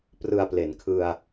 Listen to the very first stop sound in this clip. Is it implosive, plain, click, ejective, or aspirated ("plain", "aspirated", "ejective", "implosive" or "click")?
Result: plain